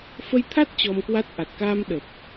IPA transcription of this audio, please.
f ə˧ j t̪ʰ a˦˥ t̚ t͡ɕ ɔ˧ m k w a˦˥ t̚ ʔ a˨˩ t̚ k aː˧ m ɗ ə˨˩ p̚

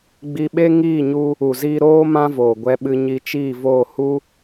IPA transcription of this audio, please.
ɡ͡b i˧ ɓ e˦ ŋ iː˦˨ ɲ u˧ | u˨ z iː˧ ɾ oː˦ m ã˦ v oː˨ ɡʷ ɛ˧ ɓ ɨ˧ ɲ i˧ t͡ʃ iː˦˨ v oː˦˨ h u˦

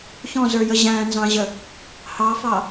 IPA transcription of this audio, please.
ç ɔ̃ z ə˞ j ə ʑ æ̃ n z ɑ̃ ʑ ə | h ɑ f ɑ

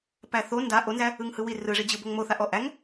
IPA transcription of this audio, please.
p æ θ o n d a ʔ o n z æ | ɯ ŋ h ɯ w i r ɯ ʐ i d͡ʑ ɯ b o ŋ m o θ a ʔ ɔ ʔ æ ŋ

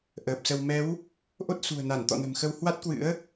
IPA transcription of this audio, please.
ʔ əː˨˩ p̚ s ə˧ w m ɛ˨˦ w | ʔ o˦˥ t̚ s ṳ˨˩ ə̯ n a˧˩ n t̪ ɔ̰˧˨ n ə̤˨˩ m x ə˧ w h w a˦˥ t̚ k w ɨ̰˧˥ ə̯

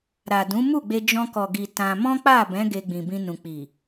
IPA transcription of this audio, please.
ɾ a˨ d ũ˨˦ m u˦˨ ɡ͡b e˧ d͡ʒ ɔ̃˧ k ɔ˨ ɡ i˨ t ã˧ m ɔ̃˦ k͡p a˦˨ b ɛ̃˨˦ ɡ e˧ ɡ͡b ĩ˨ b ĩ˧ n ũ˨ k͡p i˨

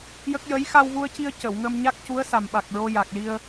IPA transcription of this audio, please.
j ə˦˥ k̚ j ə˧˥ j x a˧ w v u˧ ə̯ c i˧ ə̯ c ə˨˩˨ w ŋ ə˧ m ɲ a˦˥ k̚ c u˧˥ ə̯ s a˨˩ m ɓ a˨˩ k̚ ɹ o˧ j a˨˩ k̚ l i˧ ə̯

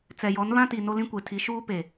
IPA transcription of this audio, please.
t͡s ɛ˨ j ɔ˨˦ n β ã˦ t i˨ n o˦ l ĩ˦ kʷ e˨ tʰ i˨˦ ʃ uː˦ p e˨

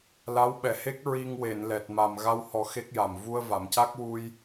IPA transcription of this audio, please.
l a˧˥ w ɓ ɛ˨˩ h e˦˥ k̚ ɹ i˧ ŋ w e˨˩˨ n l ɛ˨˩ t̚ m a˨˩ m ɣ a˧ w h ɔ˨˩˦ x e˦˥ k̚ j a˨˩ m v u˧ ə̯ v a˨˩˨ m c a˦˥ k̚ w u˧ j

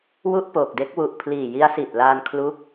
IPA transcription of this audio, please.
w u˥˩ ʔ p oː˨˩ k̚ d e˦˥ k̚ w u˨˩ ʔ pʰ l iː˨˩ j i˦˥ a̯ s i˨˩ t̚ l aː˧ n kʰ l u˦˥ k̚

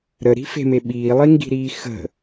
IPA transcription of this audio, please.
ɾ ə ɾ i̤ f e̤ m e ɓ iː lˠ i ŋ ɡ i̤ ɾ iː x ə̤

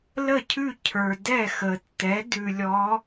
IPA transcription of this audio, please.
l ə˥˩ cʰ ʉ˥˩ cʰ ə˞˩ d ɛ˥˩ x ə˩ tː ɛ˩˥ d ʉ˩ lʲ ɔ˩˧

